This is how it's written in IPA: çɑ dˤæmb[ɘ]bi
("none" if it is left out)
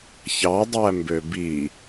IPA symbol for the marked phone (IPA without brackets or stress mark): ø